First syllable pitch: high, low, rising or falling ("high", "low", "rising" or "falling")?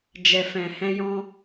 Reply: low